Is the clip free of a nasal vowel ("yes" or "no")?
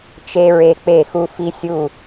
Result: yes